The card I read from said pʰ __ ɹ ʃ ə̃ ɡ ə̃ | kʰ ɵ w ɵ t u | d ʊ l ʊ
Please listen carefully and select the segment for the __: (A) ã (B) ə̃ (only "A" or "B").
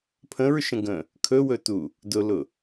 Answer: B